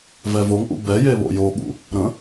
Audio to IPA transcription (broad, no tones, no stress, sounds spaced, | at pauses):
v ɛ v o ŋ ʔ ṵ b ɛ j e β o̰ j o ɠ ṵ | ɾ ə̃